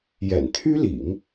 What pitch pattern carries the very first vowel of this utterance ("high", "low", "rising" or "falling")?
low